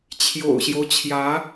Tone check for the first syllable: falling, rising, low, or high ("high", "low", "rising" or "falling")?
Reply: low